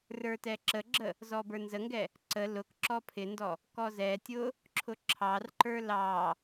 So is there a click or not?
yes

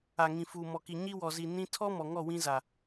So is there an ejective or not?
no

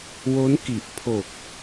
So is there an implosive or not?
no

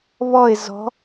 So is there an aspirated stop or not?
no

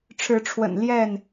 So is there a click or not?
no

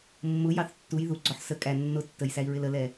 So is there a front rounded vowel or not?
no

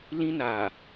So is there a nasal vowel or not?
yes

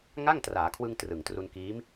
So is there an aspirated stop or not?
yes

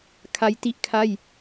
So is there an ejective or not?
no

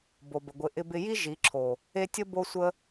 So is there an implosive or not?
no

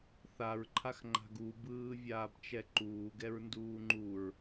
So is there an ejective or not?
no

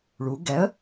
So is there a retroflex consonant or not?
yes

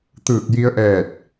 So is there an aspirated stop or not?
no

